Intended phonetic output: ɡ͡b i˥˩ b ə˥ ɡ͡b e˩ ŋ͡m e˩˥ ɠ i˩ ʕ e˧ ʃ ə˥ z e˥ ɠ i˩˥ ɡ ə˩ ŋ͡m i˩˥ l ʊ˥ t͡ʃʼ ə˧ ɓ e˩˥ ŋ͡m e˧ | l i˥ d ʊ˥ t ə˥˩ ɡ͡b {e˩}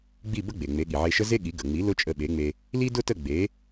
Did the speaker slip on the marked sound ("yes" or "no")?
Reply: yes